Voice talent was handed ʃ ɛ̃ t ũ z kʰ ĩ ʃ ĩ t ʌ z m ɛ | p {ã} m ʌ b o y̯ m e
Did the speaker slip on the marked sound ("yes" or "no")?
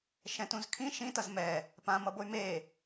no